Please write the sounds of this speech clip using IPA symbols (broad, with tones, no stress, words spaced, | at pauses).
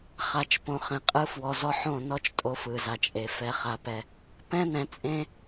χa˨t͡ʃ põ˨χẽ˨ qʼɯ˦fwɔ˨zɔ˦ ħõ˦˨nɔ˦t͡ʃ tʼo˦fɯ˨za˨t͡ʃʼe˨ fɛ˨χa˨pɛ˨ | pɛ̃˦ nɛ̃˨t͡sʼẽ˦